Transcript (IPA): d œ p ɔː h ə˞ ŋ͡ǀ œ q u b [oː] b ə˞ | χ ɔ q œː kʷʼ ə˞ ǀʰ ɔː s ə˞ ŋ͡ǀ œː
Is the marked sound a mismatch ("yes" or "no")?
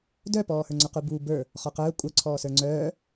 yes